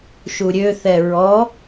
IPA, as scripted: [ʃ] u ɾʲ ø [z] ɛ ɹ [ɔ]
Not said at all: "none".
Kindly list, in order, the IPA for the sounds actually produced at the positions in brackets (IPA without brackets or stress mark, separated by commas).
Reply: ʃ, θ, ɔ